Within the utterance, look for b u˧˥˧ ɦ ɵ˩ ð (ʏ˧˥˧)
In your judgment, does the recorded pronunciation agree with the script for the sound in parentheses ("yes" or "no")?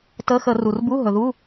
no